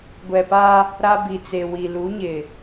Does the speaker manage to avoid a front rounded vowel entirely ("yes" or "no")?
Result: yes